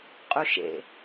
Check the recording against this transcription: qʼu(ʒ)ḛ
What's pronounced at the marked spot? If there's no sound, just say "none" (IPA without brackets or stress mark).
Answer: ʃ